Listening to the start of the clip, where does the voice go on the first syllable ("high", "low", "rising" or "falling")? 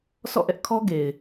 falling